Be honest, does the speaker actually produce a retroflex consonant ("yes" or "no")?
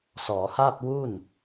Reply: no